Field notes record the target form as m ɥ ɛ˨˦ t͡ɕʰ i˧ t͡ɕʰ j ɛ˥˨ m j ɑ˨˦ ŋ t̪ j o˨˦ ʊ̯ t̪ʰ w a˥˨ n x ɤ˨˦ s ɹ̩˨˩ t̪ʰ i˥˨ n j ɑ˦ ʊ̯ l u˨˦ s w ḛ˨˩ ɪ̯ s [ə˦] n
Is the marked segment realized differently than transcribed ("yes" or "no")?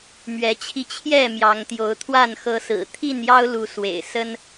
no